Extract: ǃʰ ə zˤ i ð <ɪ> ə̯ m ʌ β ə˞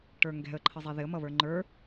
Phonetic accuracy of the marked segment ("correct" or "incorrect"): correct